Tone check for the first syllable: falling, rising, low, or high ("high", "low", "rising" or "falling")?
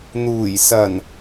low